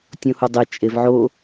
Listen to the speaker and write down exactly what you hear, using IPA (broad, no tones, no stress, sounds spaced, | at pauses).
tʲ õ h u dˤ e t͡ʃʼ e v ʕ o